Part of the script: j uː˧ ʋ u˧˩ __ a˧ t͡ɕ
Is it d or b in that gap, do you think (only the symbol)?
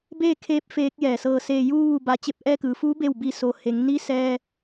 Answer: b